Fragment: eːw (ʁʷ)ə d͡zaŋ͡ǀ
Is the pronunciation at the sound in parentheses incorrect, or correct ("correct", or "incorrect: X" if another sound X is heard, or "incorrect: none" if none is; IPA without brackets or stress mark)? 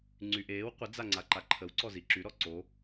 incorrect: qʷ